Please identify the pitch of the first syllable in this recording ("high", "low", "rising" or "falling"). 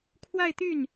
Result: falling